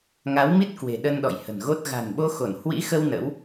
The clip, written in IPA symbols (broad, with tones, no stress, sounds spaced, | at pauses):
ŋ a˨˦ w m i˦˥ t̚ k w e̤˨˩ ɗ ə˧ n ɗ ɔ̰˧˨ j h ə̤˨˩ n ɣ o˦˥ t̚ ɣ a̤˨˩ n ɓ o˧ x o˧˩ n h w ḭ˧˥ x ə˧ w n ə̰˧˥ w